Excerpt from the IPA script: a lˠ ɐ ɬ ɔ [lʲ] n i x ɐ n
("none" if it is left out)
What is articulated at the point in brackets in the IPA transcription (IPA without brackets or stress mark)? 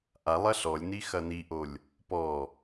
lʲ